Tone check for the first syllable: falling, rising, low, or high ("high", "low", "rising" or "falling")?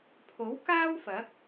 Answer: rising